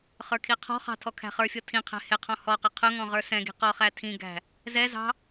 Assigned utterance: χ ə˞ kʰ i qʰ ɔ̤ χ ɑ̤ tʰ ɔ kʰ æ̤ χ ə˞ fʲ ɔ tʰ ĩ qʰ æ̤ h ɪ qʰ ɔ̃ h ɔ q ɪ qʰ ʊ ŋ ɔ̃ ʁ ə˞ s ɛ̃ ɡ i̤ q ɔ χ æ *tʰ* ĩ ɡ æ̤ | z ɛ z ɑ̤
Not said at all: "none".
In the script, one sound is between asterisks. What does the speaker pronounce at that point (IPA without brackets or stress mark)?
tʰ